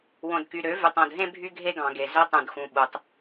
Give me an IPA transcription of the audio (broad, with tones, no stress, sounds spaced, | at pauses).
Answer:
w õ˨ d k y˨ ɾ ø˨˦ v y˨ tˤ õ˨ d ɦ ẽ˦ bʱ y˦ ɡʱ e˦ ɡ ɑ̃˨ ɡ e˨ z ø˧ tˤ ũ˨ d x ũ˨ ɓ u˨ tˤ